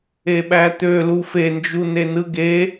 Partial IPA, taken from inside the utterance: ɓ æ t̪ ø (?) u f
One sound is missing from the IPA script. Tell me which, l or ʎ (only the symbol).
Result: l